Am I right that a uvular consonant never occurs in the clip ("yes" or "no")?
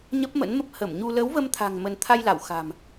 yes